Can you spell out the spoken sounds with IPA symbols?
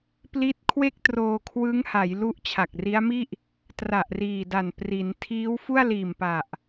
p l i˦˥ t̚ kʰ w e˥˩ k̚ t r oː˧ kʰ w ɯ˦˥ ŋ h a˩˦ j l u˦˥ ʔ t͡ɕʰ a˨˩ k̚ r i˦˥ a̯ m i˥˩ ʔ | t r a˨˩ ʔ r iː˨˩ d a˨˩ n p r i˩˦ n tʰ iː˦˥ w f u˥˩ a̯ l iː˨˩ m p a˨˩ ʔ

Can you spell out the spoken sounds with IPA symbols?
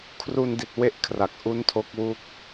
kʰ r u˧ n d i˨˩ t̚ w e˥˩ ʔ kʰ r a˨˩ k̚ ʔ u˦˥ n tʰ o˦˥ k̚ w u˦˥ k̚

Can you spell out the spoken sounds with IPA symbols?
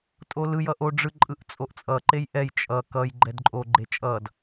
tʼ o l ɯ j ʌ ʔ o ɖ͡ʐ ɯ ǃʼ ɯ ʔ t͡sʼ o ʔ t͡sʼ ʌ ǃ e j ʔ ɛ j t͡ʃʼ ʌ k ʌ j ɡ͡ǃ ɛ d ǃʼ o ɡ͡ǃ e t͡ʃʼ ʌ d

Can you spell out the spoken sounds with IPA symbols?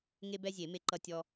ŋ e˦ b ɛ˦ zʲ e˨˩˦ m e˦ ǃ ʌ˦ tʲ ɔ˦

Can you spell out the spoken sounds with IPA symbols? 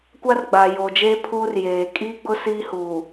kʷ a˦ r ɡ͡b aː˨ j oː˨ d͡ʒ eː˦ pʰ uː˦ r j eː˨ kʼ iː˦ ɡ͡b ʊ˦ s iː˦ h uː˨

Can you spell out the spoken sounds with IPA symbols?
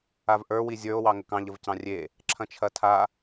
a v ʔ ə˞ w i zʲ ə˞ o̯ w ɑ ŋ ə k ɑ̃ ʎ ə v c ɑ̃ rʲ e | ǁʰ ɐ̃ t͡ʃʰ ɐ tʰ a

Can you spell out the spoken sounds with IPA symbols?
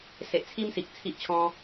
s e˨ ʔ t͡sʰ i˦ m s i˨ k̚ t͡sʰ i˦ ʔ t͡ɕʰ ɔ̃˦

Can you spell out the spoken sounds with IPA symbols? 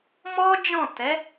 m ɔ˦ d͡ʒ ɔ̃˦˨ t ɛ˨˦

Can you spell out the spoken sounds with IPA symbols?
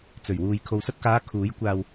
t͡s ɵ˨˩ ɥ w uː˨ j kʰ o˨ w s ɐ˧ t̚ k aː˨˧ kʰ uː˨˥ j kʷ aː˧ w

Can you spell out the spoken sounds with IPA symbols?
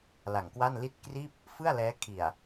l a˨˩ ŋ k w a˥˩ n l i˥˩ t̚ k r iː˥˩ p̚ | f ɯ˥˩ a̯ l ɛː˦˥ kʰ i˨˩ a̯

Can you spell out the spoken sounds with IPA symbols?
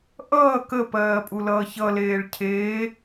ʔ ʌː k ə p ɜː pʼ u l ʌː ç ʌ l eː ɭ cʰ eː

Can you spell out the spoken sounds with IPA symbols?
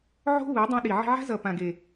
ʕ o̤˦ β ɯ˨˦ dˤ ɛ̃˧ ɗ i˨ ʕ i̤˧ ʕ a̤˦ z ʌ˨ p ã˨ ɡ e˨

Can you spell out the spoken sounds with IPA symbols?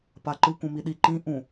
p a ǃ ɯ k ũ m i ɗ i ǃ ĩ ʔ ũ

